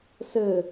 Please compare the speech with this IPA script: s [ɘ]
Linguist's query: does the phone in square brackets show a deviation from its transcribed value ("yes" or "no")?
no